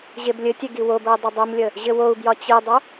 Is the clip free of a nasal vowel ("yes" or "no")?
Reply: yes